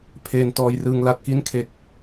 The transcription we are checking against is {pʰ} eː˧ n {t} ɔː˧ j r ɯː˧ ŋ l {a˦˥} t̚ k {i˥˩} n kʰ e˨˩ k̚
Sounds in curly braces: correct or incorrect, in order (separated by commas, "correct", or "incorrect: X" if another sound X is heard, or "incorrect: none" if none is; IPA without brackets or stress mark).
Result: correct, correct, incorrect: a˨˩, incorrect: i˦˥